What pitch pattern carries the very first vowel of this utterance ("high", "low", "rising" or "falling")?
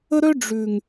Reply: high